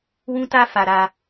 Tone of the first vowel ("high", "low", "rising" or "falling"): high